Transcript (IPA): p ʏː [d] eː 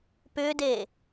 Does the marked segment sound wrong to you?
no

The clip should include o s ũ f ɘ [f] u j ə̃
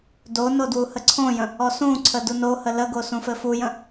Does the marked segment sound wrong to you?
no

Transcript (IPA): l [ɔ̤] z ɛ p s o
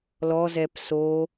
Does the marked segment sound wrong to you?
yes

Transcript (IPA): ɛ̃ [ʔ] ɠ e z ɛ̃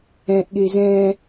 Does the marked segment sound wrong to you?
no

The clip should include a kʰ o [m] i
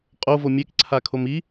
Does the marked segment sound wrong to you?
no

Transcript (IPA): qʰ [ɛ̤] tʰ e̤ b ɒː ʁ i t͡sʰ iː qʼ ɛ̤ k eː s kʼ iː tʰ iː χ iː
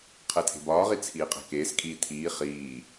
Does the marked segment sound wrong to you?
yes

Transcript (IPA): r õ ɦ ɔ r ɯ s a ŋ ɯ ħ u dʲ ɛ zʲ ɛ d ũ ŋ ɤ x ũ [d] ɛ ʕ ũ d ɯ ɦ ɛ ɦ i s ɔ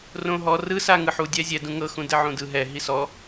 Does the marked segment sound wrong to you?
no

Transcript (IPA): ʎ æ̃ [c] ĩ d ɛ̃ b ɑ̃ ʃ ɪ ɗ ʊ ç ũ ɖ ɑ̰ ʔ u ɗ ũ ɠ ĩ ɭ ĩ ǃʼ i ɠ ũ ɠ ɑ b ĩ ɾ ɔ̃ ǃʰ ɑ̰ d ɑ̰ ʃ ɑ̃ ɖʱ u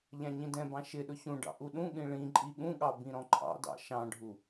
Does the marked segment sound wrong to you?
yes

